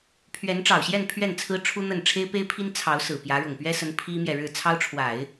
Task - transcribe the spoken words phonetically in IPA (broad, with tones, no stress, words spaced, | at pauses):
pʰɥɛ˧˥nʈ͡ʂɑ˨˩ʊ̯ɕjɛ˥˧n pʰɥɛ˥˩nt͡sʰɹ̩˥ʈ͡ʂʰu˥n̪ə˥˩n ʈ͡ʂʰe˥ɪ̯pe˥ɪ̯pʰi˥n t͡sʰɑ˧˥ʊ̯sɹ̩˨˩ pjä˧˥ ɻʊ˨˩ŋpɥɛ˥sə˧˥n pʰi˥mjɛ˨ ɻɻ̩˥˩t͡sʰɑ˥ʊ̯ʈ͡ʂʰwa˨˩˦ɪ̯